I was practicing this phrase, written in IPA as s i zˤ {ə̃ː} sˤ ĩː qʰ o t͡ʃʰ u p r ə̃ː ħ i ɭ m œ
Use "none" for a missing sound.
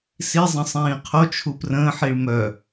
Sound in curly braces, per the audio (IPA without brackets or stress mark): ə̃